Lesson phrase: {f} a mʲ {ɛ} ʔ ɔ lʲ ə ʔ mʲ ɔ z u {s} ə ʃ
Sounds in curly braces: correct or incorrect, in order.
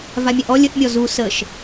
incorrect: v, incorrect: æ, correct

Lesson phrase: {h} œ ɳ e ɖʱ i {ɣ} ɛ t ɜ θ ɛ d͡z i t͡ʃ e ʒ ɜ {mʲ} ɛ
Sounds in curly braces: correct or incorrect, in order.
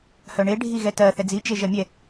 correct, correct, correct

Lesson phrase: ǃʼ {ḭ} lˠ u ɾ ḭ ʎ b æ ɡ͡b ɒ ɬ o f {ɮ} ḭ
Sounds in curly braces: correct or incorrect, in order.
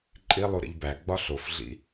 incorrect: i, correct

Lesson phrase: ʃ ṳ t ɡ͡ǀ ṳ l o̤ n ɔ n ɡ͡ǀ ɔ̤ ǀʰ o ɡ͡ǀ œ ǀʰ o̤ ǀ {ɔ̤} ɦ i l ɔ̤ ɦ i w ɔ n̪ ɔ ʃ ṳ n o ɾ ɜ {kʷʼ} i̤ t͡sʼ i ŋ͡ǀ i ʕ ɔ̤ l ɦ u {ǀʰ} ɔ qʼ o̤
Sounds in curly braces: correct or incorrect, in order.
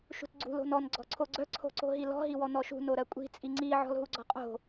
incorrect: o̤, correct, incorrect: ɡ͡ǀ

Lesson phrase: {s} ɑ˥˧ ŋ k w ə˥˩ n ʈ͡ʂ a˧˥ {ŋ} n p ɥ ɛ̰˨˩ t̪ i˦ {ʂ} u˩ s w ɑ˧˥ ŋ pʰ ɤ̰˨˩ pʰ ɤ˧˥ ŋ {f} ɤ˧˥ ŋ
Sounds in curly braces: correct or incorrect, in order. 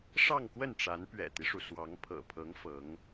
incorrect: ʂ, incorrect: none, correct, correct

